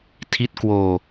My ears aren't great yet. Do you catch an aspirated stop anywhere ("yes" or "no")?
yes